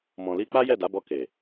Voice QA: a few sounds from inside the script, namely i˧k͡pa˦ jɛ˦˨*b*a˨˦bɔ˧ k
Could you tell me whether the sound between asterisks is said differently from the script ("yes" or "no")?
yes